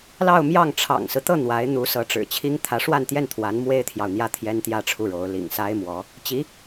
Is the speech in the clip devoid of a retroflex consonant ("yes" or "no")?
no